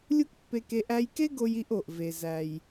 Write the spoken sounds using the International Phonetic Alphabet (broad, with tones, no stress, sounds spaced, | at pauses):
lʲ u˥ k pː e˧ k e˧ ʔ æ˧ j k e˥ ɡ o˧ j i˧ ʔ o˩ ʔ v e˩ z æ˩ j